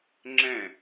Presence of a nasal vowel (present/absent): present